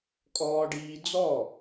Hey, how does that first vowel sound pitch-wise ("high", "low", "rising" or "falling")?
high